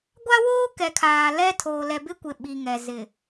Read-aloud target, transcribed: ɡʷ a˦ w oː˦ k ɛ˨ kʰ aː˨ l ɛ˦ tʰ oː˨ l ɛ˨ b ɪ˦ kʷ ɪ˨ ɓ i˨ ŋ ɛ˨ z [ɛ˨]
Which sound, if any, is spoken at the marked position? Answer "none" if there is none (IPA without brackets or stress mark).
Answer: ɪ˨